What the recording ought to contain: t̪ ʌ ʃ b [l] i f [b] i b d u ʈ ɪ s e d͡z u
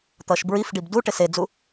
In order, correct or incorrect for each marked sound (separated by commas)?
incorrect, incorrect